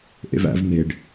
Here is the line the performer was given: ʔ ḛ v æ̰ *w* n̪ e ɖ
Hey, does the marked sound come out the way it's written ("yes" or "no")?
no